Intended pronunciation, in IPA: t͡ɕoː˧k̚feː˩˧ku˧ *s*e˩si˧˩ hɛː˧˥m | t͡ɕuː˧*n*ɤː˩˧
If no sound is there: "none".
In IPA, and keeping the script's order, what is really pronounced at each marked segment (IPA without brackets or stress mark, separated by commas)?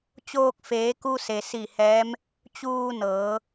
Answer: s, n